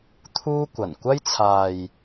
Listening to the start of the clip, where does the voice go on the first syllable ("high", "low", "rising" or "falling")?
high